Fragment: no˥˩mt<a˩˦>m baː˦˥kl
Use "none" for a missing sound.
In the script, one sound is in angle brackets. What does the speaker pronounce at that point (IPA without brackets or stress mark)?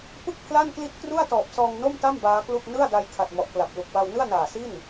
a˥˩